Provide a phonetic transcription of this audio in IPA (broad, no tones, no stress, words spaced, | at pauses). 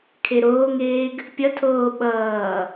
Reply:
kʰeɾoːŋeːɡ | pʲʌtʰoː ɓʌː